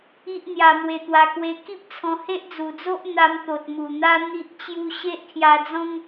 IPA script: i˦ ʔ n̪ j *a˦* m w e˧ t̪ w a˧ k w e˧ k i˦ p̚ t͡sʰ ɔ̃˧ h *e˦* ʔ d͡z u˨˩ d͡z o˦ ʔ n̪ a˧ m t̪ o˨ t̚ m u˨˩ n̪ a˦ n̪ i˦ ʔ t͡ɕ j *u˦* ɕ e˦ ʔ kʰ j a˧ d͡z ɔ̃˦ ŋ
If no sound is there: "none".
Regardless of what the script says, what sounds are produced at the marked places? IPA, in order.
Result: a˧, e˦, u˦

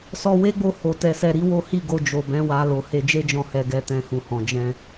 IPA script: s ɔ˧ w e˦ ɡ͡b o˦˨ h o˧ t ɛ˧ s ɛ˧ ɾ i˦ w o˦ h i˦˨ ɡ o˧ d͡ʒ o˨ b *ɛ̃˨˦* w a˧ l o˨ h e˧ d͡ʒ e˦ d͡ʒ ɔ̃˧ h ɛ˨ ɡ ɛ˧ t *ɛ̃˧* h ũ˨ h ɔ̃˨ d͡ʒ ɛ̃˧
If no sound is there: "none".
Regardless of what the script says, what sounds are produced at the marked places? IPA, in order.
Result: ɛ̃˨˦, ɛ̃˧

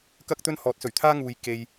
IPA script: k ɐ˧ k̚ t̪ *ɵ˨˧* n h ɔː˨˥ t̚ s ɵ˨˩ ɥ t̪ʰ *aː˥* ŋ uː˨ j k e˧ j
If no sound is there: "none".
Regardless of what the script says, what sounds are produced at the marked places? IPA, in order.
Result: ɵ˧, aː˥

